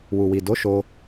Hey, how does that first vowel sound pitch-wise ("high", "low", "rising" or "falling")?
low